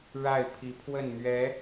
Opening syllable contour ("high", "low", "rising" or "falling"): falling